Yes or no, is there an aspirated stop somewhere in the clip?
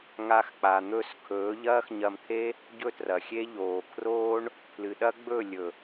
yes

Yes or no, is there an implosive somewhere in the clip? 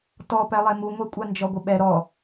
yes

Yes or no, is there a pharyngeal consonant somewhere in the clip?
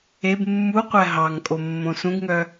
no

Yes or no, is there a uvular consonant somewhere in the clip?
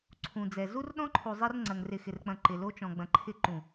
no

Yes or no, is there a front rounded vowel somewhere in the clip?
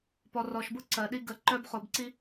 yes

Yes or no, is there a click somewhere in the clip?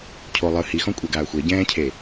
no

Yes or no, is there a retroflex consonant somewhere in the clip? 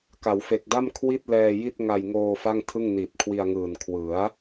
no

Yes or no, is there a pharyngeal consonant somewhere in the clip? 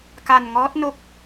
no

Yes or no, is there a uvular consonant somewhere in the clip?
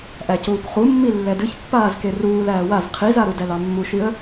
yes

